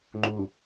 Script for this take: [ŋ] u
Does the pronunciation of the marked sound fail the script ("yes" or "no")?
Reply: yes